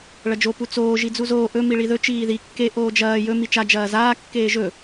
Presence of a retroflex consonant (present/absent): present